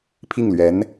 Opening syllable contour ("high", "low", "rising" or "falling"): falling